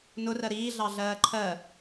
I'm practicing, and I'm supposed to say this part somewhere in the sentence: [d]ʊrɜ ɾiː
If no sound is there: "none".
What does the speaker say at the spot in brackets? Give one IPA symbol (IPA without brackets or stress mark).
n